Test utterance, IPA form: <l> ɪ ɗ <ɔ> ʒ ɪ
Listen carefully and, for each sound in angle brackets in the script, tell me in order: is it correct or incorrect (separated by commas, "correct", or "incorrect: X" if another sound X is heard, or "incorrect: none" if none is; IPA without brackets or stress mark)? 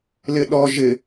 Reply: correct, correct